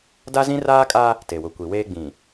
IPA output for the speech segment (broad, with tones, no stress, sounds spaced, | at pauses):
d a˦ z ĩ˦ r aː˦ kʼ a˦ | t e˨ w ʊ˨ kʷ i˨ w eː˦ ɡ͡b ĩ˨